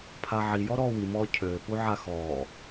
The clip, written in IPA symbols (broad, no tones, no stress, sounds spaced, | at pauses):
pʰ a ʕ i j ɔ ɾ ɔː w i m ɔː cʰ øː p u ʕ a x ɔː